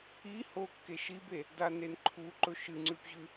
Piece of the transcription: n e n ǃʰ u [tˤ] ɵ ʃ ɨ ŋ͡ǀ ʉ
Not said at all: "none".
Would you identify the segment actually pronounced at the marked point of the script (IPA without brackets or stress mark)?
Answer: ǃ